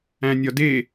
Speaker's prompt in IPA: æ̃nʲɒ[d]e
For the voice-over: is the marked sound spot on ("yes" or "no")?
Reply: yes